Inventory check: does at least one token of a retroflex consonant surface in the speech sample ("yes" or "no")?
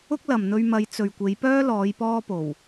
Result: no